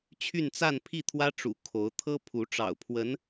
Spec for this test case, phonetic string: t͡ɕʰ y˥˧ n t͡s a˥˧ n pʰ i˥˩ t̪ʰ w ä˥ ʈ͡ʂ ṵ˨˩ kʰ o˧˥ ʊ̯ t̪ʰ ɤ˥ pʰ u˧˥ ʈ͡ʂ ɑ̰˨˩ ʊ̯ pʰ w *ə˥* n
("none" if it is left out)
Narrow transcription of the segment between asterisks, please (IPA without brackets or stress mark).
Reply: ə˧˥